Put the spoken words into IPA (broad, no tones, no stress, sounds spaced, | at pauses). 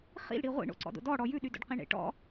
χ ḭ l ɽ i ʁʷ ḭ ɳ o̰ ǀ ɔ̰ d o̰ d ɔ ɽ ɔ j ʉ ɗ y d o̰ ɖ q ĩ ɳ ḛ ʈ ɔ̰